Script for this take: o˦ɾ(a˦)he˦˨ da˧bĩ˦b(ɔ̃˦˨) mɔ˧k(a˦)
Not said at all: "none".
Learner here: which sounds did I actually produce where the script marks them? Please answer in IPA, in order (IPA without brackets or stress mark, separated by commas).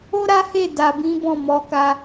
a˦, ɔ̃˦˨, a˧